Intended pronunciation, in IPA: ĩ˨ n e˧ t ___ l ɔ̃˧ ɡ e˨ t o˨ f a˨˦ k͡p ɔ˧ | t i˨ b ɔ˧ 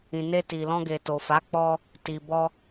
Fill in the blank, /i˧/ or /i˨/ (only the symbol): i˨